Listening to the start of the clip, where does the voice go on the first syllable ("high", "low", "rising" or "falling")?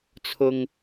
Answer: high